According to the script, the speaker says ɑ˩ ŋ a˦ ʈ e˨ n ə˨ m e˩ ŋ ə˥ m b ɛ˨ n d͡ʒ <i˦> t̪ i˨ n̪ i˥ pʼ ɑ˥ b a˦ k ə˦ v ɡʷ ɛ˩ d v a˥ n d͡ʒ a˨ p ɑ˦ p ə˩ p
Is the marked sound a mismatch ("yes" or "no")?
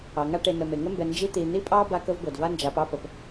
no